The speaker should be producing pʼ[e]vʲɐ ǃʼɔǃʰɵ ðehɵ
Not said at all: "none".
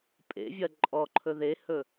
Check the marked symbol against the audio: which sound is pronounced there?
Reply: ḛ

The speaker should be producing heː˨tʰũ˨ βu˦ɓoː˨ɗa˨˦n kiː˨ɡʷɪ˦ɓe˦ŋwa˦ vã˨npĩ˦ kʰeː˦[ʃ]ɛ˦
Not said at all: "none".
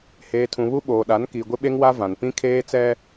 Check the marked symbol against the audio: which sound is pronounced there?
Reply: t͡s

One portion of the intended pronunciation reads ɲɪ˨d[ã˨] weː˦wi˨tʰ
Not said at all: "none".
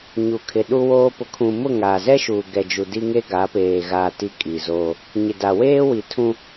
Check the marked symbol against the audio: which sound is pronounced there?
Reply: a˨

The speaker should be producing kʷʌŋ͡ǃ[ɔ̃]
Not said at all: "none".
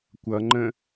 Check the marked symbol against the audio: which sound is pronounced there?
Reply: ə̃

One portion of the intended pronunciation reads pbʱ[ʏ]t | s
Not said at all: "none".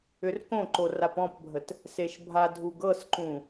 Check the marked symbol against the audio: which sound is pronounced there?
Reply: ə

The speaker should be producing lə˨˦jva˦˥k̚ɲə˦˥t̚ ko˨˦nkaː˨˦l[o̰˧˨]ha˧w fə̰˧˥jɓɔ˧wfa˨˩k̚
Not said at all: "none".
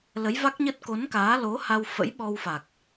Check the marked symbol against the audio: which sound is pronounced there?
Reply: o˨˦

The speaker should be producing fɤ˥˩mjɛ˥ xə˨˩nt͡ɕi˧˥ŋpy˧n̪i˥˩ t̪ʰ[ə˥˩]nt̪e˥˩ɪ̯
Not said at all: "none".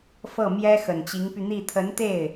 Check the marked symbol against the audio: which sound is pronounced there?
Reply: ə˧˥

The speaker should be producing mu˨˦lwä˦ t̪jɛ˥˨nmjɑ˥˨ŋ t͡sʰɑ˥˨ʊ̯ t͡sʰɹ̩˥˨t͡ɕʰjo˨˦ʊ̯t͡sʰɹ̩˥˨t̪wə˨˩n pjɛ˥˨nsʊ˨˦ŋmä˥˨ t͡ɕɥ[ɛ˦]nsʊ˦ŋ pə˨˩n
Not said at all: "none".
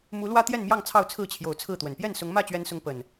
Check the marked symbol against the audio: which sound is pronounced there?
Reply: ɛ˦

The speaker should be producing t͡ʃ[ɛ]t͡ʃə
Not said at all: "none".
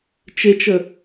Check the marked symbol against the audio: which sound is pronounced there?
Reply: e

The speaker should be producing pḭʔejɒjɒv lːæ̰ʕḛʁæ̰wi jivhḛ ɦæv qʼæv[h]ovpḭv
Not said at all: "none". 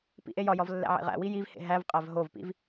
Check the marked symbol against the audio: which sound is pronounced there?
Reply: ɦ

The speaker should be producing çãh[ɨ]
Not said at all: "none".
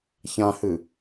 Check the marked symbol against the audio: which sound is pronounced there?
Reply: ɨ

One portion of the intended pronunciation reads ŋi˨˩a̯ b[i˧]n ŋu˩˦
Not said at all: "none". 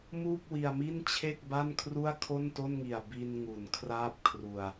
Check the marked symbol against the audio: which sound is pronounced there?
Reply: i˧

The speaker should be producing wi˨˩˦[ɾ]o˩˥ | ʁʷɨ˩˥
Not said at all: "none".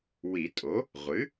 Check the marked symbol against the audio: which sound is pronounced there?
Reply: tʼ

